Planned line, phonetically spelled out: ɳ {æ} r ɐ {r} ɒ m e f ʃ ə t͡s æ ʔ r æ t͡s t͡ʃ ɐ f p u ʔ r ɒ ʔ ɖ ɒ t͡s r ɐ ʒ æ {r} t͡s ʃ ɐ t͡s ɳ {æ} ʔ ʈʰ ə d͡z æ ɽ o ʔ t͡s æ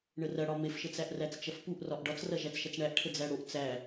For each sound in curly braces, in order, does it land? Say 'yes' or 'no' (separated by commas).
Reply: no, no, no, yes